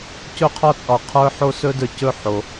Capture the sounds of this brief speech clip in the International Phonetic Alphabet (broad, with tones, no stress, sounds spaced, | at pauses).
c ɵ˦ qʰ ɒ˦ t͡sʼ ɒ˨ qʰ ə˞˧ ħ o˧ s ɵ˧ d ə˞˨ c ɵ˦˨ ħ o˨